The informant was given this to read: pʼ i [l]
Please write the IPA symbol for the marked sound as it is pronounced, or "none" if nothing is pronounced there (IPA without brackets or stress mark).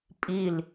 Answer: l